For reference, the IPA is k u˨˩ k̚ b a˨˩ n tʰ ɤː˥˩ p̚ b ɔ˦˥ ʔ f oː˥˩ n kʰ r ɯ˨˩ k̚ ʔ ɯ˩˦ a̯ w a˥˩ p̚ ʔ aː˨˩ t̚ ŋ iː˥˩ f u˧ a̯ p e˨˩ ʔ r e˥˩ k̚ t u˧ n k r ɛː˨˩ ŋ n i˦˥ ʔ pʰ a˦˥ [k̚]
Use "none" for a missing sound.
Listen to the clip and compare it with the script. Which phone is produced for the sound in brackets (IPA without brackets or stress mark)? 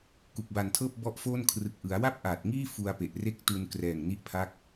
k̚